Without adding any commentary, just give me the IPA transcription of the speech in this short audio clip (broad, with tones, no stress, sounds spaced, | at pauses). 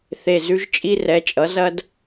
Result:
θ e˨˩ z ʉ˧ ʒ t͡ʃʼ i˧ r ɛ˩˧ t͡ʃʼ ʌ˩˧ z ɐ˧ d